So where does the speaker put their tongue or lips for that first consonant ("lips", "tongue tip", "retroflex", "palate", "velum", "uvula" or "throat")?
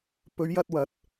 lips